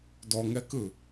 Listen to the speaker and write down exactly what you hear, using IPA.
d ɔ ŋ ɛ k ɯ

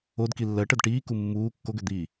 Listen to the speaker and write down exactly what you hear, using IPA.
o d k i lː ɜ ʈ ɜ d ʈ iː k u mː uː kː o ɡ ø d̪ iː

